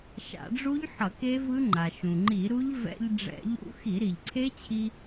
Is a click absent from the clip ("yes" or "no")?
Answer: no